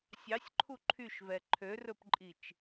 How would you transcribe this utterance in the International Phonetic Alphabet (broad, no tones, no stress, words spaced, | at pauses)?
sʲɑsʲǃʰu ǃʰyʃvɛ ǃʰørɵpǃʼit͡ʃ